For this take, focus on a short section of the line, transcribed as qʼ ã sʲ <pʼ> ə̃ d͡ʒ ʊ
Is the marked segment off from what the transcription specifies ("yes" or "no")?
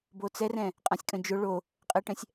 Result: yes